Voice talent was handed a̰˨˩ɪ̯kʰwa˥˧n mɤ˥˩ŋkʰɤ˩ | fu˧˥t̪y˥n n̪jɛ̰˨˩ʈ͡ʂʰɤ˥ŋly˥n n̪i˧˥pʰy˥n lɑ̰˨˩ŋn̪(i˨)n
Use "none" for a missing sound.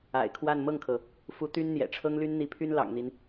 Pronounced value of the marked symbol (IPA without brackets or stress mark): i˦